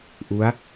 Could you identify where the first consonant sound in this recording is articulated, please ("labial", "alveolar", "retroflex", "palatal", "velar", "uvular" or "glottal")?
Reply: glottal